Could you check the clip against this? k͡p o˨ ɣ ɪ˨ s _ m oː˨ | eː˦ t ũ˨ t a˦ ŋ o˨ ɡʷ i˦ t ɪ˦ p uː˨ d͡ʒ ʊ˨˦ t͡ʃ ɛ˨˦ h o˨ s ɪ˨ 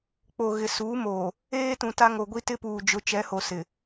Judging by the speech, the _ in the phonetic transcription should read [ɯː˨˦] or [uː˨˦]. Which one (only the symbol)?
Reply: uː˨˦